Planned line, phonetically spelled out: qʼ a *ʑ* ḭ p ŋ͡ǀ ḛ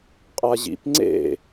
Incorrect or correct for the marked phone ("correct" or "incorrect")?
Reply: correct